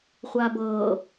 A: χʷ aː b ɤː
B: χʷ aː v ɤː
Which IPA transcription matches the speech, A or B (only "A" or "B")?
A